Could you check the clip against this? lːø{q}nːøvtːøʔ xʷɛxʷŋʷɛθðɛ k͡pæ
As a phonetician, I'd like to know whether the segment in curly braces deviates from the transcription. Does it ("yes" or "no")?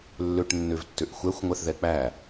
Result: yes